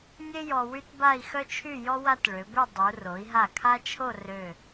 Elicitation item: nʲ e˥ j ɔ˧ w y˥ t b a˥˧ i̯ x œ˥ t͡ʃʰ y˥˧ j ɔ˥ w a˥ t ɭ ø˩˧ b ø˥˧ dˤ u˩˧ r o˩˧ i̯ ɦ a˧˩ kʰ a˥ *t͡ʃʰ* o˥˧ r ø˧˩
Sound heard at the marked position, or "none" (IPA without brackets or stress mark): t͡ʃʰ